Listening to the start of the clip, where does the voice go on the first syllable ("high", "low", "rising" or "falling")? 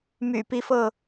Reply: low